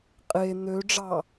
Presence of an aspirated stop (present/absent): absent